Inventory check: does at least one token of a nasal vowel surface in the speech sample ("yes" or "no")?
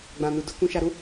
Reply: yes